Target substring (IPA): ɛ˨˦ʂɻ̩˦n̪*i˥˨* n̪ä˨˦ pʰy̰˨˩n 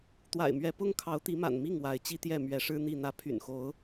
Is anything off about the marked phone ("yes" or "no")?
no